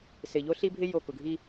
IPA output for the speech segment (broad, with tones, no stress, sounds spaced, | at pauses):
s ɪ˨ ʎ o˦ ɬ i˦ bʱ ɪ˦ j o˦˨ k ʊ˨ ɡʱ i˦